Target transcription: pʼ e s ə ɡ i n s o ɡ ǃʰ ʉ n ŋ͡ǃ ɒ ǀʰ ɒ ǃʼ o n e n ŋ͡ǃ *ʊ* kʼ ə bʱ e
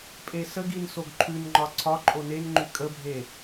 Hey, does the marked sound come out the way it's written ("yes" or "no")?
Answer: no